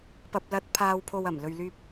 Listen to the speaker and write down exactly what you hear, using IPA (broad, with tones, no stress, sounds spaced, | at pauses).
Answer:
p ɐ˨ p̚ l ɐ˨˥ t̚ pʰ aː˨ w pʰ o˨ w ɐ˨˩ m l ɵ˨ ɥ l yː˧ p̚